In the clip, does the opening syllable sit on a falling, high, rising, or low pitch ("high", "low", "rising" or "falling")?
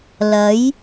rising